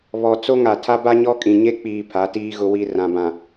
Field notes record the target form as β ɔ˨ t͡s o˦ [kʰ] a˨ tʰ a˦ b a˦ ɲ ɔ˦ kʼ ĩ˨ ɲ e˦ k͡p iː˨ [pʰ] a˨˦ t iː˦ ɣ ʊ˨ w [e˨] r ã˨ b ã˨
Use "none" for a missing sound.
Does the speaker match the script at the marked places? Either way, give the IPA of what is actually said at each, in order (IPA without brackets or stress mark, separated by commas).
ŋ, pʰ, i˨